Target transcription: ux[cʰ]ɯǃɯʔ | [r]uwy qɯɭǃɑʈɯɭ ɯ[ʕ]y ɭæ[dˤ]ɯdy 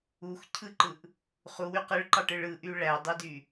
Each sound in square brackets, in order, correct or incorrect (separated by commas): correct, incorrect, incorrect, correct